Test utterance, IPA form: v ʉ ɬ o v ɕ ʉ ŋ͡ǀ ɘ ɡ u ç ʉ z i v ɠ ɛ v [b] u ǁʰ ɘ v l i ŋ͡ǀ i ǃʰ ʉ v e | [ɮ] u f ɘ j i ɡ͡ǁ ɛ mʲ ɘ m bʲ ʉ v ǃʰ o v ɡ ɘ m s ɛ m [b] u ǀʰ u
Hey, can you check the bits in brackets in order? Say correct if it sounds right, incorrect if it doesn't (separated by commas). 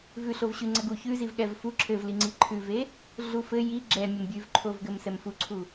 incorrect, correct, incorrect